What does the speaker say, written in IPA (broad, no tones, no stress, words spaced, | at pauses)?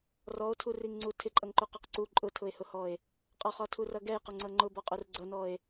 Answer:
rɔo̯tʰuriŋŋ͡ǀu tʰɪǃʼʌŋǃuqɔq ǀu ǃʼʊtʰʊe̯hʊhɔe̯ | qʼɒχɒtʰurʌ ɡɛjqʊŋ͡ǀʌ ŋ͡ǃʊbɔqʼur ɡ͡ǀʌnɔe̯